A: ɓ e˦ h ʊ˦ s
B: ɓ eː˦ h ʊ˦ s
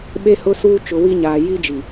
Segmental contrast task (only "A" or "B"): A